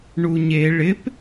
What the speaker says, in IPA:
ɳuɲe ɭɪp

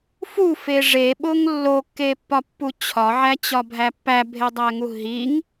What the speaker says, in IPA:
fufe ʐeɓoŋ lːokːepːɒpːu t͡ɕʰɒʕæt͡ɕɒbʱæ pːæbʱedˤæŋu ɦiŋ

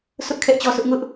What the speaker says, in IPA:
sʰʊ˦ʔ kʰɛ˦ʔt͡ɕɔ˦sʰʊ˦ʔ ŋʊ˦ʔ

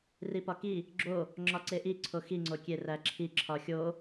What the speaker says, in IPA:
ripɒki | ɡ͡ǁo | ŋ͡ǁɒǀeʔi ǀʰoxi ŋ͡ǀokʲeræǁʰi ǁʰɒxʲo

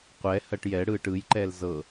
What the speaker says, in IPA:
qʷɛ hɜʈjɛɽɯːʈ ɯjǃɛl zɤ

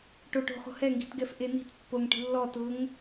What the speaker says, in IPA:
ʈoʈo̤ χo̤hɛŋɡi̤tɡɛf ʔeni̤t pːoŋʈi̤lːɔtʊːŋ

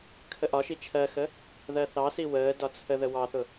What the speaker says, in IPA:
kʰəʔɒʃi t͡ʃʰɜxə | ðɜθɑsi wəː dɒt͡sʰəðə wɑθʊ

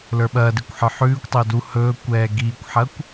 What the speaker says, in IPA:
lə˞ɓɐːdikʷ ħə˞ħʉːkʷtˤɵː du hɵːkʷɛː ɡiːkʷħɐkʷ

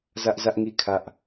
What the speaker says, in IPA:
zä˦ʔzä˦ʔŋi˦˨kʰä˦ʔ

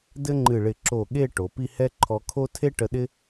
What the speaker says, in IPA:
dɘ˥ŋ͡ǃɨ˧˩ɭɪ˧˩ ǁo˧˩ ɠe˥˧ ʈo˩˧pi˥˧ hɛ˥ǃʰɔ˧kʰo˥ tʰe˥ʈə˧ ɗɪ˥

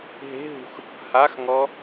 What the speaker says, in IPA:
ɦe̤ɦṳx | haxŋɔ

